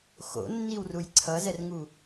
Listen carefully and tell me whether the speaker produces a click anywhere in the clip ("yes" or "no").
yes